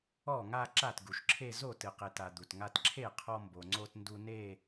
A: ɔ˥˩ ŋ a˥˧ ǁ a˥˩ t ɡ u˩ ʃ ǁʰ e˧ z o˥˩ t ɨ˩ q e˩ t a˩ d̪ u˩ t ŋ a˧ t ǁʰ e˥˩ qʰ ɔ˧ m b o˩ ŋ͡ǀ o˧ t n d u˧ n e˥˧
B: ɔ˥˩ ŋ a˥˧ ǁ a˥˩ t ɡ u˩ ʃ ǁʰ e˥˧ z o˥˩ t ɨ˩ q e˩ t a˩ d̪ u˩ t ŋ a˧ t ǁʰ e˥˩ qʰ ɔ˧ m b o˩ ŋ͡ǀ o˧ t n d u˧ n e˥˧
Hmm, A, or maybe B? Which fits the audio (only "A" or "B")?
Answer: B